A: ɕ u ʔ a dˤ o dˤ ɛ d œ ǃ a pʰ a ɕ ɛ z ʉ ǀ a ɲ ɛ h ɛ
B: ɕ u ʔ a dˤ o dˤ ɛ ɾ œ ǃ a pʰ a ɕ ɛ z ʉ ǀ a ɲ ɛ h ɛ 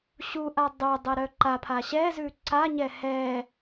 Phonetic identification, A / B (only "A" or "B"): B